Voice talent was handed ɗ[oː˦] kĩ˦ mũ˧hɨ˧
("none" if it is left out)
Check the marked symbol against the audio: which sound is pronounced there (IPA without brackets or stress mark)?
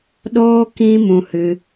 oː˦